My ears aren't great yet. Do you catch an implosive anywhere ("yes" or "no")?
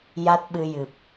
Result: yes